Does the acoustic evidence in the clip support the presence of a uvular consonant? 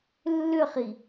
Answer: yes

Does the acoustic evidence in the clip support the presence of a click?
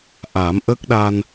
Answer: no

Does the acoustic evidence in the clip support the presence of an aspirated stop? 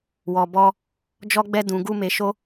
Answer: no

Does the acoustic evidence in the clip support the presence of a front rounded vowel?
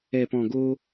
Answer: no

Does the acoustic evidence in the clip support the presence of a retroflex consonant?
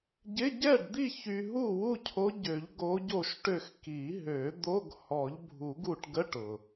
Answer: yes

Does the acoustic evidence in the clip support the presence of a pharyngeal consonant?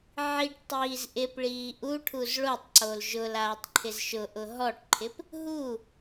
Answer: yes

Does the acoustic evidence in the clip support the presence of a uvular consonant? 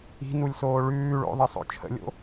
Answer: no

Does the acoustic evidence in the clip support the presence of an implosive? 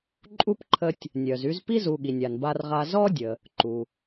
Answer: yes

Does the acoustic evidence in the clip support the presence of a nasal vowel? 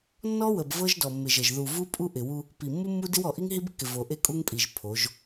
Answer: no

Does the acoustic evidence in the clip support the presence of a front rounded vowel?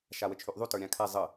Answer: yes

